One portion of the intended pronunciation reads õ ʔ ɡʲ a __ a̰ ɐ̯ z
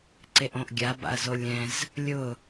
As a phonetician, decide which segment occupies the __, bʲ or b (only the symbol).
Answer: b